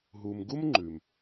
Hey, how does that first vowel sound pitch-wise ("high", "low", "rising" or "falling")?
low